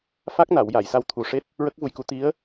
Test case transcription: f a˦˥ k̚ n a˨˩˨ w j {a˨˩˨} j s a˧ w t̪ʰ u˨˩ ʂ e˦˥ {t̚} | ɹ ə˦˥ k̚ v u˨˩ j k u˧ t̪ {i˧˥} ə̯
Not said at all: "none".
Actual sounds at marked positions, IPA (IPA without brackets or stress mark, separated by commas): a˨˩˨, t̚, i˧˥